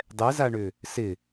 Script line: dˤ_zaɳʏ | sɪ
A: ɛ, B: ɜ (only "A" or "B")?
A